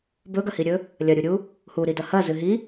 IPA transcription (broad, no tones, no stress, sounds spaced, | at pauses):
b ɵ ɡ ɐ h i ɾʲ ɵ | lʲ ɐ ɾʲ u ɾʲ u | h u ɾ i d ɐ h ɐ z ɨ ɦ i